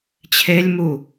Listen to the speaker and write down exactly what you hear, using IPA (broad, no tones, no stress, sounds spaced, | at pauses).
t͡ɕʰ e lʲ m u